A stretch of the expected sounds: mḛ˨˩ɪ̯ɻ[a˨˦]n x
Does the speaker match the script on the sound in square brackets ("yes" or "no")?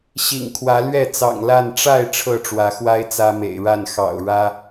no